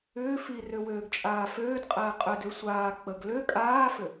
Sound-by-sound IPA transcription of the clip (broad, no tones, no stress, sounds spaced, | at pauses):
ʏː f i r ø w øː ɡ t͡ʃʼ aː f øː d qʼ ɛː qʼ ʏ d ø sʷ aː k͡p ə ɡ l ø kʼ aː f ʏ